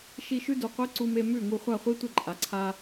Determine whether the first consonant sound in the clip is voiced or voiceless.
voiceless